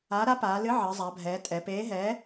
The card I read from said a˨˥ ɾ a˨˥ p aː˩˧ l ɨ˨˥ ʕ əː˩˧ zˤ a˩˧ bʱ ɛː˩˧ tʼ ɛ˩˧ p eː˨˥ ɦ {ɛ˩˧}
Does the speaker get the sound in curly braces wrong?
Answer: yes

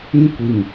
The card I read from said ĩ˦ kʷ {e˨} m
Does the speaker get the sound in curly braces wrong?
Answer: yes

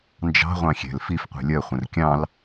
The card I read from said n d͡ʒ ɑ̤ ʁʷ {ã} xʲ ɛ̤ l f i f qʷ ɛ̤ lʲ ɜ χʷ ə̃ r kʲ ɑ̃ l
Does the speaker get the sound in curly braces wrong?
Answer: yes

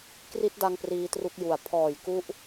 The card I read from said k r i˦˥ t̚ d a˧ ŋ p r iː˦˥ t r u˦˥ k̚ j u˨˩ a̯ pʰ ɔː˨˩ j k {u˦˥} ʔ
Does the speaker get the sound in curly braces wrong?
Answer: no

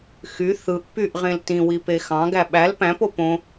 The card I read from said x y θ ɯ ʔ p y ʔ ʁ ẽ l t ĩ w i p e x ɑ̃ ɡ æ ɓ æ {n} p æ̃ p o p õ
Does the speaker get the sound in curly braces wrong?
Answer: yes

